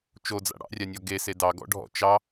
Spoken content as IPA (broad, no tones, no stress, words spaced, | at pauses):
t͡ʃod͡za̰ ɽɑ̰rʲanʲɔ ɡese dɑɡɔ̰ɖʱɔ̰ t͡ʃɑ